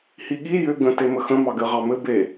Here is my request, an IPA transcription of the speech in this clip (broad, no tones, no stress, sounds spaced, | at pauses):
h i ɠ i j ʏ ɡ ə̃ t e m ə x ə̃ m ɑ ɡ ɘ ʁ ɑ m ɘ b e